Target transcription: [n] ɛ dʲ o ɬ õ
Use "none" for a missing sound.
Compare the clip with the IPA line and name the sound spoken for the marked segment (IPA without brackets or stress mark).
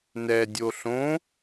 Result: n